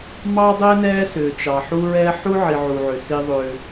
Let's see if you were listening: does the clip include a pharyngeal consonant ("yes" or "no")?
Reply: yes